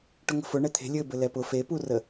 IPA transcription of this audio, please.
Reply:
ʈ ʊ ŋ ə̤ f ʊ ɳ ɛ t̪ʰ e̤ lʲ ɘ b ɘ l ɛ p ʊ f e p u r ə

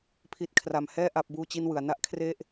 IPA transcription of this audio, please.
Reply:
pʰ i˦˥ t̚ kʰ r a˧ m h ɛː˥˩ ʔ a˦˥ p̚ b uː˥˩ t͡ɕ i˥˩ n w ɯ˩˦ a̯ n a˦˥ ʔ kʰ r e˥˩ ʔ

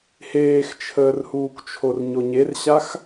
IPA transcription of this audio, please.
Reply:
h eː x t͡ʃʰ əː r h uː k t͡ʃʰ o r ɲ o ɲ e r ɕ a x

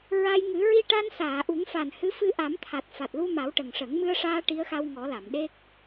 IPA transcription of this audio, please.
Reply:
ɹ a˧ j ŋ ɨ˨˩˦ ɹ i˧ ʈ a˧ n s aː˨˩˨ ʔ u˨˩˦ ŋ f a˨˩ n h ɨ˧˥ f ɨ˧ ʔ a˨˩˦ m t̪ʰ a˨˩ t̚ f a˨˩ t̚ l u˧ m a˨˩˦ w ʈ ə˨˩ ŋ ʂ ə˨˩˦ ŋ m ɨ˧ ə̯ ʂ aː˧ ʈ i˧˥ ə̯ x a˧ w ŋ ɔ˨˩˦ l a˨˩˨ m ɗ e˦˥ k̚

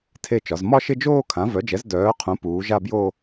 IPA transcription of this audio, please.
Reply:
tʰ e˥˧ t͡ʃ ɒ˩˥ z m ɒ˥˧ ʃ ɪ˥˧ d͡ʒ oː˥˧ kʰ ã˩˥ v œ˩˥ d͡ʒ ɛ˩˥ z d œː˩˥ qʰ ũ˩˥ p uː˩˥ ʒ a˥˧ b j o˥˧

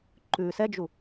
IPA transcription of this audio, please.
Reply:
ǃ ʉ s ɛ d͡ʒ u

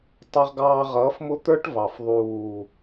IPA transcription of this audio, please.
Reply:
tˤ ʌ˧ ʁ ɡ ɑː˧ ʁ ʌː˨˦ f m ʊ˦ t̪ ə˞˦ ʈ v ɑ˨ f ðˤ uː˨

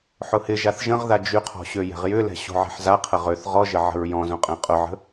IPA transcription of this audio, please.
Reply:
ħ ʊ h ɪ ʒ a θ ʒ ə̃ ʁ ð a d͡ʒ y qʰ ɔ̤ ɕ ø j ɛ̤ ʁ j ʏ l ɛ̤ ɕ o̤ ʕ ɛ̤ ħ z a qʰ ə ʁ ø θ ʁ ɔ ʒ ə ʕ ə̤ ɹ j ɔ̃ z õ qʼ ɛ̃ qʼ ʊ ʕ ə̤

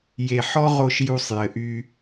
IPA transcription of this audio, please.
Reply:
j e˨ ħ ɔ˦ ʁ o˧ ʃ j u˧ sˤ j ɘ˨ ʔ y˧

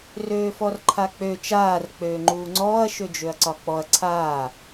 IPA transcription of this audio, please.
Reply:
r øː f ɔ r ǃʰ a k͡p ø t͡ʃ aː r k͡p øː ŋ͡ǃ uː ŋ͡ǀ ɔː ɐ̯ ʃ ø d͡ʒ ø ɐ̯ ǀ ɒ k͡p ɔ ɐ̯ ǀʰ aː

